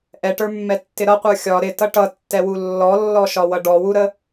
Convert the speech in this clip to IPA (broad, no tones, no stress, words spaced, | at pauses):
ʔɛʈə˞mːɛtːɪ ɾʌqʷə˞ xʲɒ ɾɪtʌ ʈʌtːɛwu lːɔlːɔʃɒwʌ ɖɔwuɾə